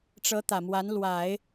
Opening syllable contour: rising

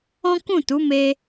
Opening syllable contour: high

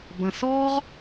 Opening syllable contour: low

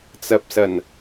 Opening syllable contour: low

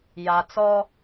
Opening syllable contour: low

